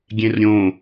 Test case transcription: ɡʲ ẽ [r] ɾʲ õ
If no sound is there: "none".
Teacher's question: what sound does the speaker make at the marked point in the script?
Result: r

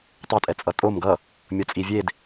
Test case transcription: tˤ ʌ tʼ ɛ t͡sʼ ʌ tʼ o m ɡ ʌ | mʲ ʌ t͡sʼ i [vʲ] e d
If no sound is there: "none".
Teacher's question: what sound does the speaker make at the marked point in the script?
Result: vʲ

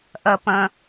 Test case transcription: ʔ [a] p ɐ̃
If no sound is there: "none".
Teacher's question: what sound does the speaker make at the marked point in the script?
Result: ɐ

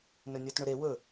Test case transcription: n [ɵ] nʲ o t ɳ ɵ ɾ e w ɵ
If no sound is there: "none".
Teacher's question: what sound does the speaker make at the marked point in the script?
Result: ɵ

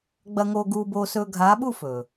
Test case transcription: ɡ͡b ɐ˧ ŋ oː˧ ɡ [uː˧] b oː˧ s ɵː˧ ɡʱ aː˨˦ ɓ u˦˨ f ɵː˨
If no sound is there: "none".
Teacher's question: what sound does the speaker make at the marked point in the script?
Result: uː˧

